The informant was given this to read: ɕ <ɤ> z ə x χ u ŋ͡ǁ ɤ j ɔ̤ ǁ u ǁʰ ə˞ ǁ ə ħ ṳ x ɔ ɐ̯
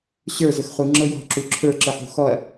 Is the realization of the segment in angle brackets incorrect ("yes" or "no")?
yes